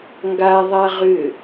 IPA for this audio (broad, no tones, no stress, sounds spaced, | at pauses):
ŋ ɡ a ðˤ a ʁ ʏ